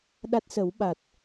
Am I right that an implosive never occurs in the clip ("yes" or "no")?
no